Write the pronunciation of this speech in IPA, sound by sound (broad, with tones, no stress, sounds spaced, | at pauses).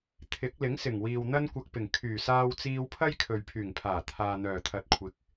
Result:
t̪ʰ ɪ˨˥ k̚ l ɪ˨˥ ŋ s ɪ˨˩ ŋ w iː˨ w n̪ ɐ˥ n kʷ ɐ˧ k̚ p ɪ˨˩ ŋ kʰ yː˨˩ s aː˧ w t͡s iː˧ w pʰ ɐ˥ j kʰ ɵ˨ ɥ pʰ yː˨˩ ŋ pʰ aː˨˩ t̪ʰ aː˨ n̪ œː˨˩ t̪ʰ ɐ˨˥ t̚ kʷʰ ɪ˨˥ k̚